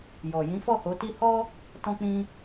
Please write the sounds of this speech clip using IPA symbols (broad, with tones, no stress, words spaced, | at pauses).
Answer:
jɔ˨ jĩ˨˦fɔ˦˨ho˨˦ti˦ hɔ˦ | tɔ̃˧k͡pĩ˧